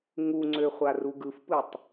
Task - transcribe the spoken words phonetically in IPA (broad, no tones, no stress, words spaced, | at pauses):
ŋuŋ͡ǀøχʷa ruɡɯfpɯtˤ